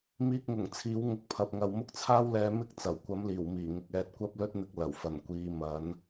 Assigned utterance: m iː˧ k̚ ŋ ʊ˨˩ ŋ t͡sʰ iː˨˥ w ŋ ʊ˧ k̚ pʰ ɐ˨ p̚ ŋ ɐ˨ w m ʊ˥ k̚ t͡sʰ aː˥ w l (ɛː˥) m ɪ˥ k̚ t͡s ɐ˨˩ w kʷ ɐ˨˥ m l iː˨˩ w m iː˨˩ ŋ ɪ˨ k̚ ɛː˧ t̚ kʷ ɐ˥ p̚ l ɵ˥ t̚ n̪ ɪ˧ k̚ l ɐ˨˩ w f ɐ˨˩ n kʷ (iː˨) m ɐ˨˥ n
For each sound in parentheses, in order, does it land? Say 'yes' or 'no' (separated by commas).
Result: no, no